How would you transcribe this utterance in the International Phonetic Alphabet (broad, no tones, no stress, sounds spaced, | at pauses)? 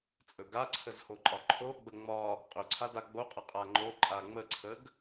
t͡sʼ ɵ ɡ a ǀʰ ə z h o ǃʼ ɒ ǃʰ o ɡ͡b ə ŋ͡m ɒ | qʼ ɵ ǀʰ a d a ɡ͡b o qʼ ə qʼ a ŋ͡ǃ o ǃʼ a ŋ͡m ə ǀʰ ə ɡ